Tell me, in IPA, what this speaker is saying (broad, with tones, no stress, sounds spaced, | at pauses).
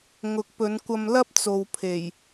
ŋ ʊ˨˥ k̚ p ɵ˨˧ n kʷ ɐ˧ m l ɐ˥ p̚ t͡s o˨ w pʰ e˨˩ j